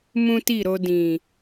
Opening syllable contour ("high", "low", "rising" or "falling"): high